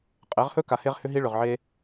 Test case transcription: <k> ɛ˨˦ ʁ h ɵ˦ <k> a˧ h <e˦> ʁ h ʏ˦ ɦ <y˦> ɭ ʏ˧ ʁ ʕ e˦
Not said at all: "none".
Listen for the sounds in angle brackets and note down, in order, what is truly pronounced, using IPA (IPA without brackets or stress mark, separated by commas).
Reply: qʼ, k, e˦, i˦